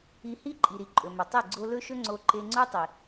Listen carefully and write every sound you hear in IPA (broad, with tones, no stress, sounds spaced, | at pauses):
i˧ h i˦ ǃʼ i˨ ɾ i˨ ǃʼ ɵ˨ m ɵ˨ tˤ e˦˨ ɡ͡ǀ o˧ l ɵ˦ ʃ ɵ˦ ŋ͡ǀ o˧ ǃ e˧ ŋ͡ǀ o˦ tˤ i˨